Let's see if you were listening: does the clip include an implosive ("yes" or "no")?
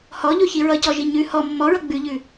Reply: no